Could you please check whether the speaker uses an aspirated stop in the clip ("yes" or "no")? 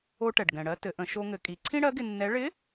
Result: yes